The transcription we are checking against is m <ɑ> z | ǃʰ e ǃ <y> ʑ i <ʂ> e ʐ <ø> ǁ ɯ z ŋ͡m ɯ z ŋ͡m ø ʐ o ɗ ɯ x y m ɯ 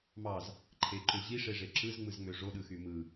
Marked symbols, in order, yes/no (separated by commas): yes, no, yes, no